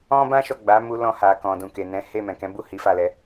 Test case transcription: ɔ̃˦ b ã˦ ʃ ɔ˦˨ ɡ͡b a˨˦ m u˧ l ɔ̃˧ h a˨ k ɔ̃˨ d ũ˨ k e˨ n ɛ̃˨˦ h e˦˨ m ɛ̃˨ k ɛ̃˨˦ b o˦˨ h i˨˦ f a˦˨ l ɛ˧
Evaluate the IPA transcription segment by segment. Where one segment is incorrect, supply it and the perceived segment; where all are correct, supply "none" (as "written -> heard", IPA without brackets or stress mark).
o˦˨ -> u˦˨